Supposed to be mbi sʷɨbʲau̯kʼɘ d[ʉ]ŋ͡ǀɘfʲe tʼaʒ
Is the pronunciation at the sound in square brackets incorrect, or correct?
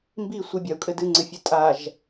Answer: incorrect